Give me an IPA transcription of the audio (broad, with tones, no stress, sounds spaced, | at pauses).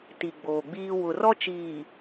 t i˨ ɡ͡b oː˨ ɡ͡b iː˦ w ʊ˨ r ɔ˦ t͡ʃ iː˨